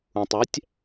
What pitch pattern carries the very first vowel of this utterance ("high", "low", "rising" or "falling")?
low